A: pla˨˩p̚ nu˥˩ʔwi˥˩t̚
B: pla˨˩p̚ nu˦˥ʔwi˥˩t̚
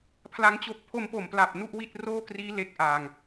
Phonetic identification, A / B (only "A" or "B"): A